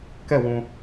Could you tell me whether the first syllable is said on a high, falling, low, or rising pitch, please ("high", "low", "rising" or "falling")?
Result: falling